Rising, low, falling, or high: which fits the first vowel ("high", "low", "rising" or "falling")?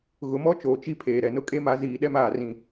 rising